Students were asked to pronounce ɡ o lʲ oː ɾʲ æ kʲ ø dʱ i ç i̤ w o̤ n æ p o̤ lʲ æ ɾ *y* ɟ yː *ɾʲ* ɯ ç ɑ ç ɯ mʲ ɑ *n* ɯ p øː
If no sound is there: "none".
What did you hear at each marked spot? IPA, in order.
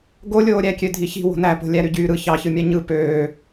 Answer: y, ɾ, ɲ

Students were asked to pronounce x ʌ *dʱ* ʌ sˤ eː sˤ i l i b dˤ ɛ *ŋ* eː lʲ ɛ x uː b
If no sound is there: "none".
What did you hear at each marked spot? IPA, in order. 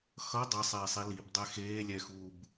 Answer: dˤ, x

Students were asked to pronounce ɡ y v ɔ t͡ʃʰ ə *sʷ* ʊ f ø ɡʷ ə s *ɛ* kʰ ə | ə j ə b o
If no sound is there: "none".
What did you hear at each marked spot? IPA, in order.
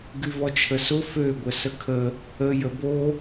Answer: s, ə

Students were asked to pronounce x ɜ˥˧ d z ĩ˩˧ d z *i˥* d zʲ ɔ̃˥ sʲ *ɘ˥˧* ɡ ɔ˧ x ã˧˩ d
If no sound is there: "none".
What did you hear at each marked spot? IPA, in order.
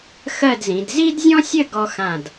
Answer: i˥, ɘ˥˧

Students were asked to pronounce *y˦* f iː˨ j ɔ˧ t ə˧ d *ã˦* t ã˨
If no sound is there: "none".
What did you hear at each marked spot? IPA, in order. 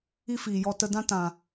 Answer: i˦, ã˦

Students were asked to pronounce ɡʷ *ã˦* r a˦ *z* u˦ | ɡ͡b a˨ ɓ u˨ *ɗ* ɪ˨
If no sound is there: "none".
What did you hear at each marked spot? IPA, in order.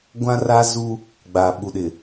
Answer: ã˦, z, ɗ

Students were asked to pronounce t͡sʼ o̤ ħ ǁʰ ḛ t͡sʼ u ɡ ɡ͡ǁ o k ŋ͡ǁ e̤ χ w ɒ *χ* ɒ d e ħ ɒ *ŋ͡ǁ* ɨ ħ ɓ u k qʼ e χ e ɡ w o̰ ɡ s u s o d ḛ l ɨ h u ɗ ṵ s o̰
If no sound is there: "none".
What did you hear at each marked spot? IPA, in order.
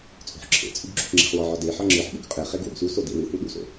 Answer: ʕ, ŋ͡ǁ

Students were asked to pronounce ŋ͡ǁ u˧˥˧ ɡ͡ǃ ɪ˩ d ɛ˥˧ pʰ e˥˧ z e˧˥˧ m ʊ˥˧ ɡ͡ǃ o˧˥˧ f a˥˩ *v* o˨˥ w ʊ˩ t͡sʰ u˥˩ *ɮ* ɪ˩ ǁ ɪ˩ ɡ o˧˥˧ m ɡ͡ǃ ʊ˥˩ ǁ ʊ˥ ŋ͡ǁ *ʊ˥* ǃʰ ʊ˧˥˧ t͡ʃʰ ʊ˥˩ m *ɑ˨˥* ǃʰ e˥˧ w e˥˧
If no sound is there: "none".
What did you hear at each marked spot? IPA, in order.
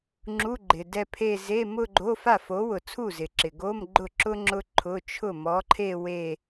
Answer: f, z, ʊ˥, ɔ˨˥

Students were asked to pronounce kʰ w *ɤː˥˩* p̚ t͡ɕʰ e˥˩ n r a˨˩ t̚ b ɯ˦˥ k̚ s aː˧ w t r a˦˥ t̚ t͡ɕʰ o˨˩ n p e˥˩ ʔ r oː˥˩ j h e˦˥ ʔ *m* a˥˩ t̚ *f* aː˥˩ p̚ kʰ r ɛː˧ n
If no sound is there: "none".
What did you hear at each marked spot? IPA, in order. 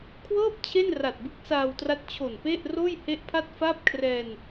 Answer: ɤː˥˩, pʰ, f

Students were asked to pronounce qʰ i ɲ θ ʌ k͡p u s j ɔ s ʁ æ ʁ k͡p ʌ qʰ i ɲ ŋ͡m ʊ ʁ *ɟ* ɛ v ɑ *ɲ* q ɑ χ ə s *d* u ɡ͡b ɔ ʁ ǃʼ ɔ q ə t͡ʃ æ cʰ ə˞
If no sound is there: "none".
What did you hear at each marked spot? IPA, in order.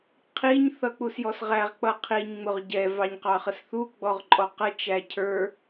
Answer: ɟ, ɲ, θ

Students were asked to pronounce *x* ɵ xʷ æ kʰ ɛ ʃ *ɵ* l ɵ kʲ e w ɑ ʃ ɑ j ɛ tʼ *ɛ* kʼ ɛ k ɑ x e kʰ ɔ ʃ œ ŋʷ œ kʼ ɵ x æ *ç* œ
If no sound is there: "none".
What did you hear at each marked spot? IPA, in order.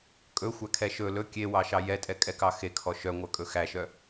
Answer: kʼ, ɵ, ɛ, ʃ

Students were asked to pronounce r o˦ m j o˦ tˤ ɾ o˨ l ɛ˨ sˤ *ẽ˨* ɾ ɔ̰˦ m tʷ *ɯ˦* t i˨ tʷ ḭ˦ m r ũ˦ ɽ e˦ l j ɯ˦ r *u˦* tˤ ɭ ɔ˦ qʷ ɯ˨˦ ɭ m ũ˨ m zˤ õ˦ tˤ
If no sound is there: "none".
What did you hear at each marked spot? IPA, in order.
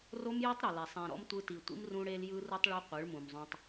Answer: ẽ˨, ɯ˦, u˦

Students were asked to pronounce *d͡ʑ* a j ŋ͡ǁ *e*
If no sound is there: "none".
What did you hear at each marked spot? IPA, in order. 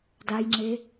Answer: d, e

